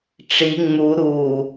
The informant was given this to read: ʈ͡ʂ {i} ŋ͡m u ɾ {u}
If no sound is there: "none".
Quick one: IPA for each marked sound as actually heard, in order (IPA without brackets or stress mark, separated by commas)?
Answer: i, u